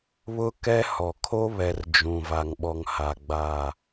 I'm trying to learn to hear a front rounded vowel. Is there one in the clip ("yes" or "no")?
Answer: no